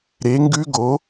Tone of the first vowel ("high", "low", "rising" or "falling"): rising